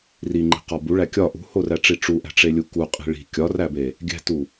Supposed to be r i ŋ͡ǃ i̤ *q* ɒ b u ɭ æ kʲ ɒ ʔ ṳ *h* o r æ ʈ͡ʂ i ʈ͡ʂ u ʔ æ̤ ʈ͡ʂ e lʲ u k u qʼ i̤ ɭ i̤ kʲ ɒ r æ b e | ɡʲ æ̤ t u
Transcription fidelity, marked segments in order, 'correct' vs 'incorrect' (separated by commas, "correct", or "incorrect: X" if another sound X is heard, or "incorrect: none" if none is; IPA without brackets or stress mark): correct, correct